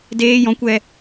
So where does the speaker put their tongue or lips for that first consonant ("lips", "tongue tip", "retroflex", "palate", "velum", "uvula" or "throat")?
tongue tip